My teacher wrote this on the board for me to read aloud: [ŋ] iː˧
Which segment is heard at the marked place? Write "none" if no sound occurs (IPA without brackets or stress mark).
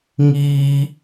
ŋ